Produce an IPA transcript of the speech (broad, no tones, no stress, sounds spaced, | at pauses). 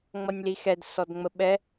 ŋ͡m ʌ nʲ l i x ɛ d s ɔ d ŋ͡m ə ɓ ɛ